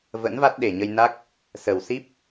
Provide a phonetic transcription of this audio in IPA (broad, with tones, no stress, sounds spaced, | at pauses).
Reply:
v ə̰˧˥ n v a˦˥ t̚ ɗ e˨˩ ɲ ə˧ j n a˦˥ k̚ | s ə˨˩ w s i˦˥ p̚